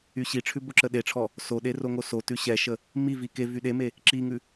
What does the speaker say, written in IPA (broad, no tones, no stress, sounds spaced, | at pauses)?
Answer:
y ɕ i ʈ͡ʂʰ ʉ b o ǁ ə ɗ e ʈ͡ʂʰ ɔ | s o ɗ e r o ŋ o s o t ʉ ɕ ɛ ʃ ə | m i v i k e v y ɗ e m e | ǁ i ŋ ʉ